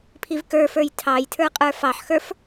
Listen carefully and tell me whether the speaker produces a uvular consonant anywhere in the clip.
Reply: yes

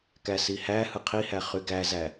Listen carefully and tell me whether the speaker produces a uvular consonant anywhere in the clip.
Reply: yes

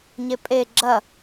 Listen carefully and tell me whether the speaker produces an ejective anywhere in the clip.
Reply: yes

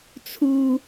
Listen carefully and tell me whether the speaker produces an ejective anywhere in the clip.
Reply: no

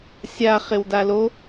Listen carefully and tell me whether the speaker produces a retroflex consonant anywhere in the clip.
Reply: no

